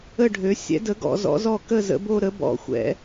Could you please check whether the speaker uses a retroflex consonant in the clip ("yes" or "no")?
yes